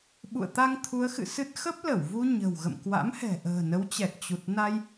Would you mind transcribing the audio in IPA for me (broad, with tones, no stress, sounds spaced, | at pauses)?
ɓ ṵ˧˨ ə̯ t̪ a˧ ŋ t̪ʰ u˨˦ ə̯ x ɨ̰˧˨ s ɨ˦˥ t̚ x ə˦˥ p̚ l ə˧˩ w v u˧ ɲ ə̤˨˩ w ɣ ə̰˧˨ m k w a̰˧˥ m h ɛ̤˨˩ ʔ ə̤ː˨˩ n ə˨˦ w t͡ɕ ɛ˨˩ k̚ t͡ɕ u˨˩ t̚ n a˧ j